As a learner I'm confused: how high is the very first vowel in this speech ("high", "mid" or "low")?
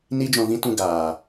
high